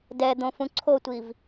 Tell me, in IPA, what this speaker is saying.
d ɛ d̪ õ f ũ ǀʰ o tʷ i v

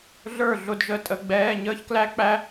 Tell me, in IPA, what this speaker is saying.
ɮ ə˞˥˩ ɮ ʊ˥˩ d ʒ ə˥˩ tʼ ə˧˥˧ ɡ͡b ɛː˧˥˧ ɲ əː˥ ç k l æ˥ k͡p æ˥

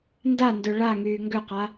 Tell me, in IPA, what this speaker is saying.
n d a n d ø ɭ a ŋ yː ŋ ɡ ø q a

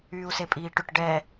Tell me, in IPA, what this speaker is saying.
yː u̯ s e pʼ iː ʈ ʏ ʈ ɖ ɛ

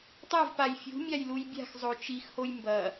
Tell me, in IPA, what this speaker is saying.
tˤ a v p a j fʲ ṳ mʲ a j l u j bʲ a̤ x zˤ o t͡ʃ i x h o j m b ɐ

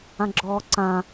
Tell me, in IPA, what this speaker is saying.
ã ɡ͡ǁ ɔː ǀ ã

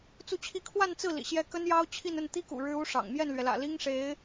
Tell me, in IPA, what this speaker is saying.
t͡s u˥˧ t͡ɕʰ i˥˧ kʰ w a˥˧ n t͡s ɹ̩˥˩ l ḭ˨˩ ɕ j ɛ˥ k ə˥ n j ɑ˥ ʊ̯ t͡ɕʰ i˥˧ n ə˥˩ n t̪ i˥ k ṵ˨˩ ɻ ɻ̩˥ u˥ ʂ ɑ̰˨˩ ŋ m j ɛ˥˩ n l ɥ ɛ˩ l ä̰˨˩ l i˥ ŋ ʂ e˧˥ ɪ̯

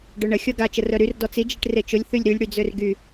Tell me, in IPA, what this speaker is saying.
ɖ œ ɳ ə xʲ ɔ ɡ a t͡ʃ ə r œ ɾ y r d ɔ t͡s i d͡ʒ i ʈ r e t͡ʃ ʊ lʲ θ y lʲ ɾ y lʲ ɽ y d͡z ø r ɡ y

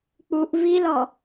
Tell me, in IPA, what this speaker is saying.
k͡p u ʔ v i l ɔ

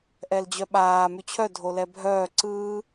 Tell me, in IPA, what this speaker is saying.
ʔ ɛ l d͡ʑ œ ɓ aː m y t͡ɕʰ œ dʱ o l ɛ bʱ œː ǀ ɯː

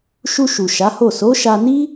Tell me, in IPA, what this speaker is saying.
ʃ u˧ ʃ u˨ ʃ a˨˦ h o˦˨ s o˨˦ ʃ a˧ n i˦

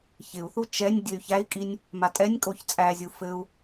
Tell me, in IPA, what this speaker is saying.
ç ɪ u̯ θ u t͡ʃ ɛ nʲ dʲ ɘ y̯ ç æ i̯ kʼ i nʲ | m a tʼ ɛ nʲ kʼ o ç t͡sʼ æ zʲ u f ɘ u̯

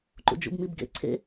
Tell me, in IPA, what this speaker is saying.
ǃ ṵ d͡ʒ ṵ b m i b ɡ ḛ ǀʰ ḛ

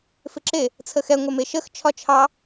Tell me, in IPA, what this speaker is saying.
f ɪ ǁ e | t͡sʰ ə x ɛ ŋʷ ɛ m e ʃ ə x t͡ʃʰ ɒ t͡ʃʰ ɑ

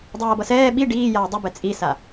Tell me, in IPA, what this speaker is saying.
dˤ aː b ʌ s ɛː ɓ i ɖ iː j aː dˤ u b ɛ t͡sʼ i s a

